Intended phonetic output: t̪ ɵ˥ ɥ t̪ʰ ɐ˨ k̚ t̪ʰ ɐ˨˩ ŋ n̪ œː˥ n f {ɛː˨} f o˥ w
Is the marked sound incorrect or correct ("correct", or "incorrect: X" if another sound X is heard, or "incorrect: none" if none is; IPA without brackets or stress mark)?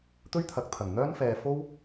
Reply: correct